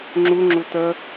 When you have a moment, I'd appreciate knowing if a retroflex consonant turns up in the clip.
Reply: no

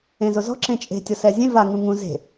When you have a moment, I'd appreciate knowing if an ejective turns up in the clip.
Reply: yes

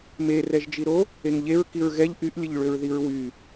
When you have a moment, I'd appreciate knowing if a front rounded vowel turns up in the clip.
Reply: yes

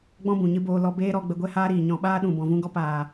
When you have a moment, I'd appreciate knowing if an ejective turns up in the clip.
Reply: no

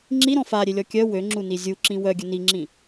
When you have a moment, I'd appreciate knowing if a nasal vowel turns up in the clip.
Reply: yes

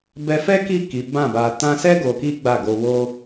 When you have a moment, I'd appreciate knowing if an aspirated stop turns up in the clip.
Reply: no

